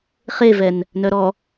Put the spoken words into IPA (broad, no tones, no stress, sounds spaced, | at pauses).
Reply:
χ e v ɛ n | n œ ɾ ɔ